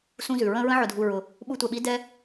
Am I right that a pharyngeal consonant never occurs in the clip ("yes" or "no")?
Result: no